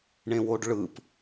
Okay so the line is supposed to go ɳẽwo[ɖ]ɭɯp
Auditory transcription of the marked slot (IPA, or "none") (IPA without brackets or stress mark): ɖ